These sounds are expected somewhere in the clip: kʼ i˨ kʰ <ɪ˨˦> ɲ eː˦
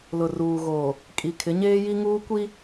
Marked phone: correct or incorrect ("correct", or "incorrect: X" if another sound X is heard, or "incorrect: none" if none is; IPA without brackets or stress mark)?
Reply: correct